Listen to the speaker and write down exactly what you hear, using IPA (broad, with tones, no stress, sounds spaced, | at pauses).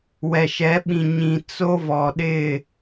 w ɛ˨ ʃ ɛ˨˦ ɓ ĩ˨ ɲ ĩ˨ t͡s o˦ v ɔ˨ ɗ ɪ˦˨